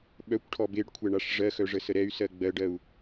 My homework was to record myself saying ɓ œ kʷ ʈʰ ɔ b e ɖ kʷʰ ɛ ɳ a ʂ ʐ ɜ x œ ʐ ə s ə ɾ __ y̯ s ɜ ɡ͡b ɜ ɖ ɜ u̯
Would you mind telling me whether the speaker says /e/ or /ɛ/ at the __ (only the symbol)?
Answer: ɛ